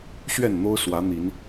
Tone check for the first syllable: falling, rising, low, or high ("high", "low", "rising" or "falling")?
falling